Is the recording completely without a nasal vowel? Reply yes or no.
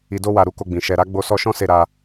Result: no